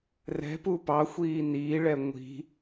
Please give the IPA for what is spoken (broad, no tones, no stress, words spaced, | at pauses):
rɛ̤ pupɑxʷiː niːɭɛ ŋʷi̤